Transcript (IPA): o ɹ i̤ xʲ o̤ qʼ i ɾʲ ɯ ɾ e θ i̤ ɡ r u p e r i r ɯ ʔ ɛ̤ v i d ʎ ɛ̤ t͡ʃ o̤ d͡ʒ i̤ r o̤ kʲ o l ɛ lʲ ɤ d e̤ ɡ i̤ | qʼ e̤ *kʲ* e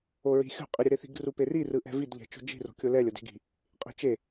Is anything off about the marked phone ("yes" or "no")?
yes